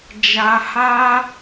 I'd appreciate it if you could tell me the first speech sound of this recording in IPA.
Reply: d͡ʒ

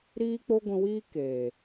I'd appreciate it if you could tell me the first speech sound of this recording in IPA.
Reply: ɾ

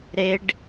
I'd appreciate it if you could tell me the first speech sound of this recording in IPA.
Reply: ɾ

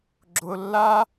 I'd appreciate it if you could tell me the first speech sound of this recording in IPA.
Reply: ɡ͡ǁ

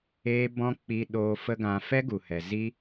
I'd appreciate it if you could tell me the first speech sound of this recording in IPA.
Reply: eː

